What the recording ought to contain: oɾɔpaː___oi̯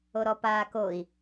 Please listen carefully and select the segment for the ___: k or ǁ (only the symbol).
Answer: k